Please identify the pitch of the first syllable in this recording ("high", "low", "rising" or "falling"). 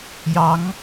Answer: rising